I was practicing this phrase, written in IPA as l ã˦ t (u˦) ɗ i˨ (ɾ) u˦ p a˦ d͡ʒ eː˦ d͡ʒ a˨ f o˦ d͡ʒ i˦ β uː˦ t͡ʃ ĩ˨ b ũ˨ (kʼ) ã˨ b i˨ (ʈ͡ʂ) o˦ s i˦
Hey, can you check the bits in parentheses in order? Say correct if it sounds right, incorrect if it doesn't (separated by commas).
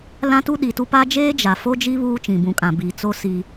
correct, incorrect, correct, incorrect